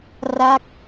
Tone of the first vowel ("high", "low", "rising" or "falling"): falling